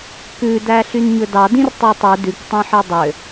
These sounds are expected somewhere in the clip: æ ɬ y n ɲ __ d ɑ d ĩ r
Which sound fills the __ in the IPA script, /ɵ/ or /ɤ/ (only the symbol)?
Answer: ɵ